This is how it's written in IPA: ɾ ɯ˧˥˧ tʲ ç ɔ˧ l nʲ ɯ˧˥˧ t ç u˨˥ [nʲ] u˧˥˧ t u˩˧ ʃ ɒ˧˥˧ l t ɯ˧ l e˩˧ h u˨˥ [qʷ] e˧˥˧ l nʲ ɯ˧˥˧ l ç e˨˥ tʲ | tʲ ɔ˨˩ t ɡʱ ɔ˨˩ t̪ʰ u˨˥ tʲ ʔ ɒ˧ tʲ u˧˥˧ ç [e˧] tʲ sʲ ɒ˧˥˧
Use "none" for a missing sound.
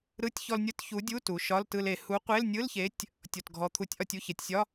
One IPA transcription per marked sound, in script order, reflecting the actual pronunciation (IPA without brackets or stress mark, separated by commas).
dʲ, qʷ, e˩˧